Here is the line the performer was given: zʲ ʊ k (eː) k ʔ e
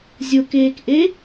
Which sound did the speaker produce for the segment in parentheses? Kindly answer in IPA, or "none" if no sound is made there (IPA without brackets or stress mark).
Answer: eː